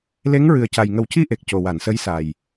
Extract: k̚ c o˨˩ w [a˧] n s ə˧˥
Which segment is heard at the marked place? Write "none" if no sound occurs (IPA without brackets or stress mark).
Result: a˨˩˨